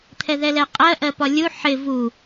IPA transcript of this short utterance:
t̪ʰɛðɛlɛqʼɜ ʔɜpɒlʲu ħɪ vu

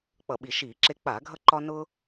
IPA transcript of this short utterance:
k͡pʌ˧˩˧ɓi˧˩˧ʃiː˧˩˧ǁe˦ k͡pa˧˩˧ɡʱʌ˦ǃɒ˦ nʊ˦

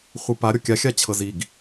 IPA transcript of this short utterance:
χʷɨpa ɾʲɔkʲa xʲat͡ɕʰɤziɡ

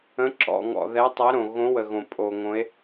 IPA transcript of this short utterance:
ə̃˨˦ ǁɔ̰˩ŋɔ̰˩ ðɛ˨˦tˤɛ˨˦ɾõ˩ ɣõ˨˦wə˩ɣõ˩ pʼo˩ŋõ˨˦e̯

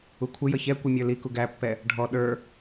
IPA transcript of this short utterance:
ukʷʰɪjʌ çɛ kʷimʲə˞liku ɡæpːɛ | ɖʱɔ ɗə˞

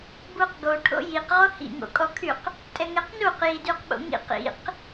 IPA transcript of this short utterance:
buqɡoʈʰo̰ jiqʁo hḭŋo̰kʼɔkʰyq | tʼɛŋɛqnuq jidyqɓo̰ŋḭq ḭq

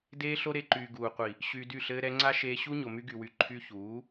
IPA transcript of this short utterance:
deː˦ɬo˦ɾe˧ǃyː˨ ɡuː˨qʷi˨ | ɕyː˧dy˦˨ ɬɘː˧ ɾɛ˧ŋ͡ǀa˦ ʃeː˧ɕu˦ ɲo˨my˧ɡy˨wy˨ ǃʰy˧çuː˨˦

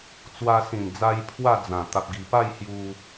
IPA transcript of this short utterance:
t͡swa˧sĩ˨˩nd͡za˧j pʰwa˥˧d͡zã˨˩ t̪a˨p̚ɡi˨˩pa˥˧j hju˧

